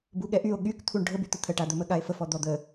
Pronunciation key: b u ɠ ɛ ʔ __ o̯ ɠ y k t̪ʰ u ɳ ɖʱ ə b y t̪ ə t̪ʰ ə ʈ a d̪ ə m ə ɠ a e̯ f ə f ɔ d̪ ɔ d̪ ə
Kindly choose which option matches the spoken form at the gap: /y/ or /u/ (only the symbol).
y